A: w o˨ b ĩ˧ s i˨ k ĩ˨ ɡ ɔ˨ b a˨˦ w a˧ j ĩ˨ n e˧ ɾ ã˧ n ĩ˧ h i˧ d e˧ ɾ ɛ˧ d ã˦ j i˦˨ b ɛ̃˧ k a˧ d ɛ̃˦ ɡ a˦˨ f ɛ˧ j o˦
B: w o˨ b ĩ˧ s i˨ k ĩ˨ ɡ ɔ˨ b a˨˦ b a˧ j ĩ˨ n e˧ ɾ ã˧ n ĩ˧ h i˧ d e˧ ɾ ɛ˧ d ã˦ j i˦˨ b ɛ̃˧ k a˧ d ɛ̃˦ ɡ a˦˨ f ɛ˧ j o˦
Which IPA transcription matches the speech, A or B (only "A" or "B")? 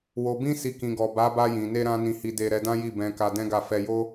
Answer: B